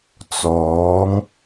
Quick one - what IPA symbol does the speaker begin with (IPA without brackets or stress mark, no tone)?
t͡s